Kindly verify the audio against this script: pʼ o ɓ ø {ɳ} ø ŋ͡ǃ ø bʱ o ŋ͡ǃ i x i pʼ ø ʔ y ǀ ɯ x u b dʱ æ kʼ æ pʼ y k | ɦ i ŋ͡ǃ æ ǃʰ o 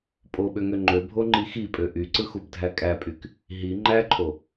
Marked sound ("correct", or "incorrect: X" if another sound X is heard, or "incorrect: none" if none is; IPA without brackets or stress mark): incorrect: ŋ